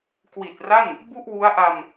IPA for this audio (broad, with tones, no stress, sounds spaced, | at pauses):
k w i˨˩ t̚ r a˥˩ n | b u˥˩ ʔ w u˦˥ a̯ ʔ a˧ m